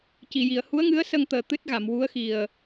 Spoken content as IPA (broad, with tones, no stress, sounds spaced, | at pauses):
c i˨˩˨ j i˨˩˨ ə̯ h u˧˥ ə̯ ŋ ɨ˧˥ ə̯ s ə˧ ŋ t̪ əː˨˩ t̪ ɨ˦˥ t̚ ɣ a˨˩˨ m w u˧˥ ə̯ x i˨˩ ə̯